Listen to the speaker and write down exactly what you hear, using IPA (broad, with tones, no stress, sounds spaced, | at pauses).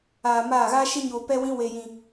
aː˨ m aː˦˨ ɣ aː˦ ʃ e˦ ɲ oː˧ p ɛ˦ w ĩ˦ w e˧ j ĩ˧